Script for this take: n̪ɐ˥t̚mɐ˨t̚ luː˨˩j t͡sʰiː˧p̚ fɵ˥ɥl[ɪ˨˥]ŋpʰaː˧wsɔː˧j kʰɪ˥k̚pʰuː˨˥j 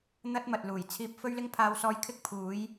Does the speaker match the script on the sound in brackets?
no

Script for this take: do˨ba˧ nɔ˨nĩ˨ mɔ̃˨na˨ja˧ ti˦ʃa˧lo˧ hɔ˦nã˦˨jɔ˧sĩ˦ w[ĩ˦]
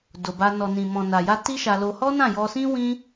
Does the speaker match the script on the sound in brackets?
yes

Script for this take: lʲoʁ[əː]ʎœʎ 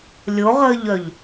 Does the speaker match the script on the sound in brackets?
yes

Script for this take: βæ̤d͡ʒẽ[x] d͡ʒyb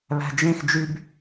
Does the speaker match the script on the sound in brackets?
yes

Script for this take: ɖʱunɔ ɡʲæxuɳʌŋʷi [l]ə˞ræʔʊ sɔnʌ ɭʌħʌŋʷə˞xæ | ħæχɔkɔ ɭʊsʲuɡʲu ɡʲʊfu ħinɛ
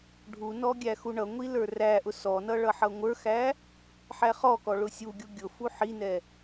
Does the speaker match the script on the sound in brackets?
yes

